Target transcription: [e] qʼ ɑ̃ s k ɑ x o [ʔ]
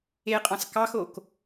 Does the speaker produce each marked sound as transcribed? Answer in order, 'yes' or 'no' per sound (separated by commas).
yes, no